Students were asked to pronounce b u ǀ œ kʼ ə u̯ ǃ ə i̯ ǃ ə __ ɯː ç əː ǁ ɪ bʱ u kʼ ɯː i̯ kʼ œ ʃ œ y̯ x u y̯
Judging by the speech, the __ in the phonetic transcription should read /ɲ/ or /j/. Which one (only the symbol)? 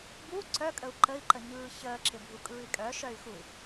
ɲ